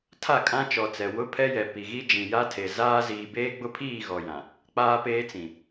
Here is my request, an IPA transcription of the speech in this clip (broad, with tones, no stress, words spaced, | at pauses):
tʰa˦˨kʼã˦t͡ʃɔ˨t͡sɛ˨ wʊ˦pʰɛ˦jɛ˨ pi˨ɣi˦ d͡ʒĩ˨ ja˦tʰe˨ zaː˦ ziː˨beː˦ɡ͡bʊ˦pʰiː˦˨ ɣɔ˨jã˨ | k͡paː˦peː˦t͡sĩ˨